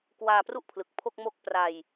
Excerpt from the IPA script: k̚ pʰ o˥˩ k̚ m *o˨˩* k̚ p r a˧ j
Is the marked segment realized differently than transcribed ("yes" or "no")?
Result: yes